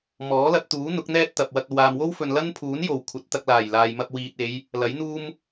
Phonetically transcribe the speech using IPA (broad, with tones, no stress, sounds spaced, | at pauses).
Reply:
m ɔː˨˥ l ɐ˧ t̚ t̪ uː˨˥ n̪ ʊ˨˥ k̚ n̪ ɛː˥ t̚ t̪ ɐ˨ p̚ w ɐ˧ k̚ ɐ˨ w aː˨ m w o˥ w f ɵ˨ n l ɐ˥ n pʰ uː˨˥ n j o˨˩ w kʷʰ ɐ˨˥ t̚ t̪ ɐ˧ k̚ l aː˨˩ j l aː˨ j m ɐ˧ p̚ w iː˨ t̚ e˨˧ j | l ɐ˨˥ j n̪ uː˥ m